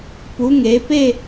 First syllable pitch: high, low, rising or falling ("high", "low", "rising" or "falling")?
rising